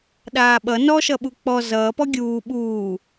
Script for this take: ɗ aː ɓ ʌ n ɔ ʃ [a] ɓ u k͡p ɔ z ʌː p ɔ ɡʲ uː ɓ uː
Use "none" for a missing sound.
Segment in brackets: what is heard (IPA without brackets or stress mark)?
ʌ